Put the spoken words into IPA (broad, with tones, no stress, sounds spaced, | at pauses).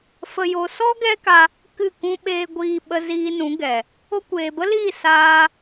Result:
f ə˧ j o˧ s ɔ˦ ɡ ɛ˦ k a˧ | k ɨ˦˨ k ũ˦ ɓ eː˧ ɡʷ iː˧ ɓ ə˧ z iː˧ n ũ˨˦ ɡ ɛ˨ | o˧ kʷ eː˨ b ə˦ l iː˦˨ s aː˧